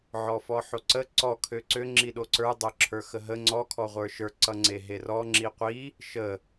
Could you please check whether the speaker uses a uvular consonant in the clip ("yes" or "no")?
yes